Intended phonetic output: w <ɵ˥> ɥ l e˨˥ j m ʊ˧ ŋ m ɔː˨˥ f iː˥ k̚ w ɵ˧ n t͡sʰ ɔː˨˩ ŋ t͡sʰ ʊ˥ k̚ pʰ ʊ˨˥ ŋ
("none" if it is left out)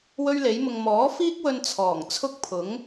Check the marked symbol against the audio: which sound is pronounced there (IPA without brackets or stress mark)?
ɵ˥